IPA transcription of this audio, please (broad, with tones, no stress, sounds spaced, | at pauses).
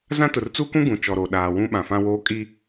z ã˦ t ʊ˨ r t͡s u˦ k ũ˦ ɡ ũ˨ t͡ʃ ɔ˨ ɾ o˨ ɗ aː˨ w ũ˦ ɓ ã˨ f ã˦ w oː˦ kʼ i˦